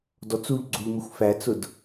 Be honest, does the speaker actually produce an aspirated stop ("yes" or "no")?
no